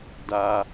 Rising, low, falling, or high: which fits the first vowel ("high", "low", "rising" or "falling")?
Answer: high